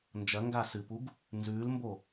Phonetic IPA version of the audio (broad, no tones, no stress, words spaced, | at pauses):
nd͡ʒɐŋɡa sɨpuɡ | nzʉːlmbo